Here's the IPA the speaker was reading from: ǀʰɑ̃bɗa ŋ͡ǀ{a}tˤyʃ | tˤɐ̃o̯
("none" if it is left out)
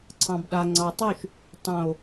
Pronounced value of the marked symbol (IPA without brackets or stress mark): ɑ